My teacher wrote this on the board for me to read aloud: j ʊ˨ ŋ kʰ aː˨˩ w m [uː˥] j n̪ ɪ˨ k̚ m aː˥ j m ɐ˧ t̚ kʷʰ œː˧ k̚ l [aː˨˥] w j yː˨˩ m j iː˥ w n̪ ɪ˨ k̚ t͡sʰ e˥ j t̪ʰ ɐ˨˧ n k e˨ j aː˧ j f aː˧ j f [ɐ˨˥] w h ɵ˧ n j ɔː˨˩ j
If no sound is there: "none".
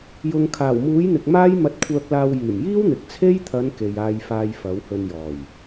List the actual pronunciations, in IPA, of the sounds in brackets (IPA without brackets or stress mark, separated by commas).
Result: uː˨˥, aː˧, ɐ˨˥